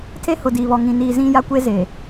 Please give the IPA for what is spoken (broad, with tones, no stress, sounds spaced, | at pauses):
tʰ e˦ h ʊ˨ d iː˨ β ɔ˨ ŋ ĩ˨ n iː˨ z ĩ˦ j a˦ kʷ e˦ z e˨